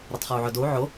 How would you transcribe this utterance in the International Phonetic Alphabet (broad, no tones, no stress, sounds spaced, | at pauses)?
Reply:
ɾ ɐ tˤ χ o u̯ ʕ ɵ d o u̯ ʕ o